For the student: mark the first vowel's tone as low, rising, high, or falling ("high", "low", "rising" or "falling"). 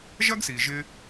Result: high